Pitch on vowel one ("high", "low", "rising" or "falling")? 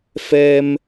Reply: high